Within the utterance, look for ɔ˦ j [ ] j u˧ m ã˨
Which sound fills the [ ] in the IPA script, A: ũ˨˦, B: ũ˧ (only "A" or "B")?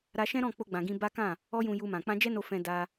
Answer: B